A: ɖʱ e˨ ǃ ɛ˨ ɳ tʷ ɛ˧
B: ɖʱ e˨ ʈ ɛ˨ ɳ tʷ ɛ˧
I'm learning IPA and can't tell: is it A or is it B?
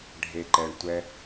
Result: A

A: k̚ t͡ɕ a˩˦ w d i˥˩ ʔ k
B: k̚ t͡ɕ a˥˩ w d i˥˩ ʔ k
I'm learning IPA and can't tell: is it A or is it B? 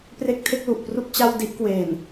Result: B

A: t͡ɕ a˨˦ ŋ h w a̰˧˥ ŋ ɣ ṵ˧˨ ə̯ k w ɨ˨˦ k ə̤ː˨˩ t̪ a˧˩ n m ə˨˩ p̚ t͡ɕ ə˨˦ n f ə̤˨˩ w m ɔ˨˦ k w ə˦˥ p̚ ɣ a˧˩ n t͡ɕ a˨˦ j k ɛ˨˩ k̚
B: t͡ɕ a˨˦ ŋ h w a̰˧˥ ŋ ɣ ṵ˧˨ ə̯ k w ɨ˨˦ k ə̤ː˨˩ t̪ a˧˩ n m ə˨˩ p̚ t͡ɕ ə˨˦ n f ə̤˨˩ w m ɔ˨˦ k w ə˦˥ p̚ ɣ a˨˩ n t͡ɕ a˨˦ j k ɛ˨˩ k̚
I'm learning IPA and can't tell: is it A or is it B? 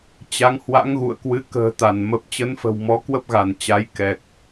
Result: A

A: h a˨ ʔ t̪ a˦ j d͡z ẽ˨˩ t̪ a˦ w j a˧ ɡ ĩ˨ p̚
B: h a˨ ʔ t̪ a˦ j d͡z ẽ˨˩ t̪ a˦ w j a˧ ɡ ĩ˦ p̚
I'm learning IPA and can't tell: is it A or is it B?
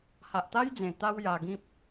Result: B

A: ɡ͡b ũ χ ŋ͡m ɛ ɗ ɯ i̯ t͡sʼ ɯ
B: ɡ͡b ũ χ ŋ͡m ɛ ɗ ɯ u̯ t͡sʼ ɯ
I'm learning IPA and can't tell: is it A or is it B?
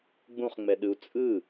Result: B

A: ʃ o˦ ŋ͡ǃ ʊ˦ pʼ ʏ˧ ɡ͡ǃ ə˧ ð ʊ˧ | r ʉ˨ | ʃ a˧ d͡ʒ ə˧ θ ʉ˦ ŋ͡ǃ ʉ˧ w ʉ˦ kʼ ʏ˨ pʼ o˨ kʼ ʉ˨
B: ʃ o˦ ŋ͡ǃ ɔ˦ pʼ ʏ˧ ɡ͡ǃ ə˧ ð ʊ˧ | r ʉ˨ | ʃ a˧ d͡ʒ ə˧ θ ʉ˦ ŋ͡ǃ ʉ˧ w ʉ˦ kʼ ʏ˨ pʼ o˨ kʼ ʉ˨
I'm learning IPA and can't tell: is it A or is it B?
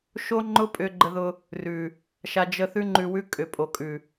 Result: A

